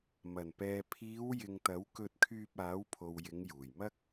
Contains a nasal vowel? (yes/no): no